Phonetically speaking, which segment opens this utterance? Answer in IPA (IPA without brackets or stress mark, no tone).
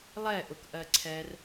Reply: lˠ